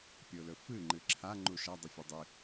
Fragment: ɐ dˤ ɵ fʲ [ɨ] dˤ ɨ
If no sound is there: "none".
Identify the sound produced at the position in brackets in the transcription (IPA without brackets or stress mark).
ɨ